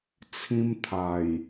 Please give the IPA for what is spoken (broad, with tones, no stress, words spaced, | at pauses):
t͡sʰĩ˦m t̪ʰa˨˩j